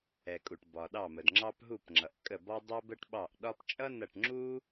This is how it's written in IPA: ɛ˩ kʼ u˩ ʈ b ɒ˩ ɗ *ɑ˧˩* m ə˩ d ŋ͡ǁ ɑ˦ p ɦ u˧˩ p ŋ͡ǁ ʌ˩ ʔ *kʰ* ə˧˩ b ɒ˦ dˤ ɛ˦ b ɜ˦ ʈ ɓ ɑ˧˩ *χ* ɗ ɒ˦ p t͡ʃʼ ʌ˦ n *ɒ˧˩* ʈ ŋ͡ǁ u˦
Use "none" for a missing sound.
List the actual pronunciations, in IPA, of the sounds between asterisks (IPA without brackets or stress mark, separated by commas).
ɑ˧˩, kʼ, ʔ, ʌ˧˩